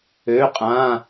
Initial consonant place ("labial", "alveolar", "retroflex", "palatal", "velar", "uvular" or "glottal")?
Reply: uvular